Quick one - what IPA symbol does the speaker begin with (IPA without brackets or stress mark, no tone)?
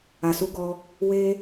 a